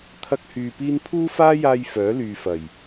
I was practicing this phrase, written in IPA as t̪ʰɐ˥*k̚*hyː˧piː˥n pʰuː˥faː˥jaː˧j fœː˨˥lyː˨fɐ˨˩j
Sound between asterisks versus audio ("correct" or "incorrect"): correct